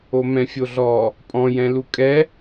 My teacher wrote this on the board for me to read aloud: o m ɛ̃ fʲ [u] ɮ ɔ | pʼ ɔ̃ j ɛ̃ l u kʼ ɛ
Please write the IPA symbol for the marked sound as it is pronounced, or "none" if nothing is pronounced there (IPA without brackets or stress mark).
o